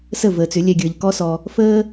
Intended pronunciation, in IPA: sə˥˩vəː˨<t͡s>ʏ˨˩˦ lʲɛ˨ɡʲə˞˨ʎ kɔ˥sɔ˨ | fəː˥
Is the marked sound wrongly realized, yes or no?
no